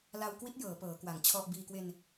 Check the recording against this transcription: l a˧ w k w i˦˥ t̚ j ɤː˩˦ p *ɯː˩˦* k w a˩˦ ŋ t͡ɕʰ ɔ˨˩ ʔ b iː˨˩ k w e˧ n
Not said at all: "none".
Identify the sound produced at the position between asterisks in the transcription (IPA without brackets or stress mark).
ɤː˩˦